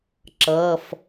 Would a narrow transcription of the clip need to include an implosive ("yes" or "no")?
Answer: no